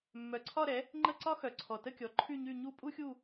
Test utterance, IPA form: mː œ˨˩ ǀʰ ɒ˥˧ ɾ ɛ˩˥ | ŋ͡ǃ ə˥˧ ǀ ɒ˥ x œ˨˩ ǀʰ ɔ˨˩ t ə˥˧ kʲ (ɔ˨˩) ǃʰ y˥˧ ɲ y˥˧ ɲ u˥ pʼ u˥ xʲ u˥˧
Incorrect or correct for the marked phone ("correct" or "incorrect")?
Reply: incorrect